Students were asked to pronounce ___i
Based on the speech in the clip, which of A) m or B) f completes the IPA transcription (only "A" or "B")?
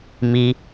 A